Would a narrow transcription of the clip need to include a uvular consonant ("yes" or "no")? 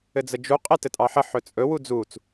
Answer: yes